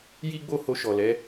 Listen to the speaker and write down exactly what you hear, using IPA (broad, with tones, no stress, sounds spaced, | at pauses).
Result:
j i˦ ɡ͡b o˦˨ h o˧ ʃ ɔ˨ l ɛ˨˦